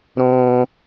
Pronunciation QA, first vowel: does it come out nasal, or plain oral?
nasal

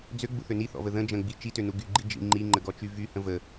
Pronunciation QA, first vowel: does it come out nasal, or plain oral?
oral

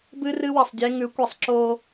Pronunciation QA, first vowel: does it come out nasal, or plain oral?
oral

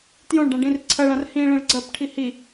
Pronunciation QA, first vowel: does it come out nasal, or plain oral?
nasal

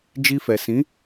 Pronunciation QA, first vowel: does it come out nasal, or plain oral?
oral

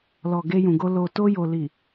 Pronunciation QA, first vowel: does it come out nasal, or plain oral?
oral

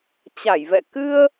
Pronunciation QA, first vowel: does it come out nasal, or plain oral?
oral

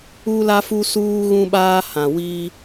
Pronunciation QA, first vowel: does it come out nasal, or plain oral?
oral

